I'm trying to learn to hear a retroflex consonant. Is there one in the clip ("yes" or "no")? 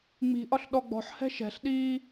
no